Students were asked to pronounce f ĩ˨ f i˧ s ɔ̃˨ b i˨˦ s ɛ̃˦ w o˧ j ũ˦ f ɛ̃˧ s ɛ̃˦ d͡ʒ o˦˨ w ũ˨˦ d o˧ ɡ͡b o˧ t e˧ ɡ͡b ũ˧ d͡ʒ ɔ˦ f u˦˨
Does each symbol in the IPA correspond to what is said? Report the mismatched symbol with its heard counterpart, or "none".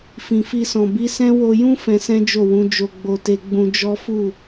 d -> d͡ʒ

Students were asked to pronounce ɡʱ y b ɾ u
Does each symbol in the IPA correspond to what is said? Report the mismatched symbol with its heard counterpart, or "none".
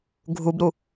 y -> u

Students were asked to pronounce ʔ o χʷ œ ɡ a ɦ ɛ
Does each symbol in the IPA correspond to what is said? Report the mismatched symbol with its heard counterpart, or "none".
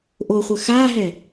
ɡ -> x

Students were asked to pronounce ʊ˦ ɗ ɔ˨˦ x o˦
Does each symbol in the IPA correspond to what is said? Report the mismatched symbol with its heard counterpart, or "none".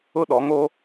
x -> ŋ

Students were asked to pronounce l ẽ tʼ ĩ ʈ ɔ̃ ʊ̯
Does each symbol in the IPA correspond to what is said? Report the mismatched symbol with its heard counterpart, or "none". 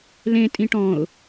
none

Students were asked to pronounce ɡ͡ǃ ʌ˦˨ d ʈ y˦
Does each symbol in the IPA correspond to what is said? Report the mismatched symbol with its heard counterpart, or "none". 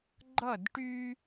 none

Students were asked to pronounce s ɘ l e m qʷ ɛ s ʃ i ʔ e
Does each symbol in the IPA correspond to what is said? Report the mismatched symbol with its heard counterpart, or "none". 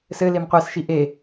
none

